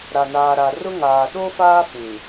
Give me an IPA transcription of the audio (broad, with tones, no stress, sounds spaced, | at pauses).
ɾ a˨ n aː˨ ɾ a˨ r ʊ˦ ŋ aː˨ ɗ o˦ f aː˦ f ĩ˨